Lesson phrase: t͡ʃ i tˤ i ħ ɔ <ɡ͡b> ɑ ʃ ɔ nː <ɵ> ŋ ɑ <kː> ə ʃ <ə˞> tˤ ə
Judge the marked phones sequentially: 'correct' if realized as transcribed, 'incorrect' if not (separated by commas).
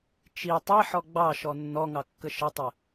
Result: correct, incorrect, correct, incorrect